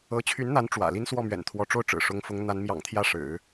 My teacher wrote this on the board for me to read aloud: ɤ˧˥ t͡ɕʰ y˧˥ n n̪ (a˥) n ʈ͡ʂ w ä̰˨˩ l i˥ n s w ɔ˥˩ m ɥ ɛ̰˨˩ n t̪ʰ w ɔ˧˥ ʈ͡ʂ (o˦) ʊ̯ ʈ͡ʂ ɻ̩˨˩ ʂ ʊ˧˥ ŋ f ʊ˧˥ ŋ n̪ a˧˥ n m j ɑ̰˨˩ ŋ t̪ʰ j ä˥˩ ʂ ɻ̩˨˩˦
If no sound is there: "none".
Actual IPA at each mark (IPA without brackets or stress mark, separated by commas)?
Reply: a˧˥, o˥˩